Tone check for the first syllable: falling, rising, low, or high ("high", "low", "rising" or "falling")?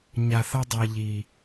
low